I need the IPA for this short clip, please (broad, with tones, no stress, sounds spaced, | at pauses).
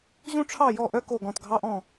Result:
ʑ ũ˥ ʈ͡ʂʰ ɑ˥˨ j ɔ˥˨ ʔ œ˥ k o˥˨ ɡ ɔ̃˥˨ t ɡʱ ɑ˥ ʔ ɔ̃˥˨